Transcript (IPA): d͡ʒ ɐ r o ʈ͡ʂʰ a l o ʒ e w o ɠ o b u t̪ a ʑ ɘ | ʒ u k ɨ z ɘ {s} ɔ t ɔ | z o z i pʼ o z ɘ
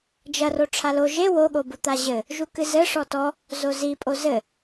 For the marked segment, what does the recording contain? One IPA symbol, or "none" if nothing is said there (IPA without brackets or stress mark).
ʂ